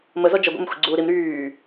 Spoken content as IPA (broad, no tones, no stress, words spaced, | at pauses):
mə zɔd͡ʒə ɡʷa̰mxʷḭɡ͡ǀuːɾim ɾyː